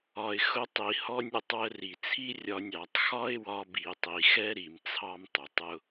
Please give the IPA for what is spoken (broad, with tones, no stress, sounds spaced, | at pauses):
ɒ˨ ɪ̯ x ʊ˧ tˤ i˨ h ɔ˧ nʲ ʊ˨ tˤ w ə˧ r i˨ t͡sʰ i˦ rʲ ɒ˧ nʲ ɑ˨ tˤ x ɒ˦ ɪ̯ w ɒ˧ b i˨ tˤ i˨ x ɛ˦ ɾ i˨ m t͡sʰ ɑ˦ m tˤ ʊ˨ tˤ ʊ˦